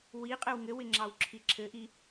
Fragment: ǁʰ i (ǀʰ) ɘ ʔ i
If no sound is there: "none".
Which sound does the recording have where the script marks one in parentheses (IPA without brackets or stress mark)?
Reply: ǁʰ